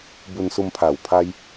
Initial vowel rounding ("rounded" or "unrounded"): rounded